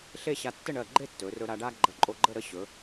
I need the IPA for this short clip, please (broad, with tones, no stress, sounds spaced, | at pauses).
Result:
ɬ e˥˧ ɕ a˧ tː ə˥˧ ɳ ɜ˧˩ ɡ͡ǃ e˥˧ tː ɵ˩˧ r ɵ˧ ɾ a˧ ɖ a˥ ɡ͡ǃ ə˧ ǃʼ o˧ ɡ͡ǃ ə˥˧ ɾ ə˥˧ ɕ ɵ˩˧